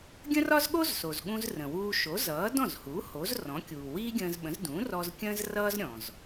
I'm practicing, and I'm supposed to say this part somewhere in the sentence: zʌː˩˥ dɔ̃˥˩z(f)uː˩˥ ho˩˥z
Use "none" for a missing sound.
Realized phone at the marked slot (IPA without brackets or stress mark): h